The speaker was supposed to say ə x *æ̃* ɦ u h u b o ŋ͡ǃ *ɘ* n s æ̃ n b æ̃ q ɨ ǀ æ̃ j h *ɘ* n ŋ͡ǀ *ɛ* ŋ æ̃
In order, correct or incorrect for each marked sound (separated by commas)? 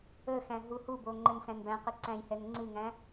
correct, correct, incorrect, incorrect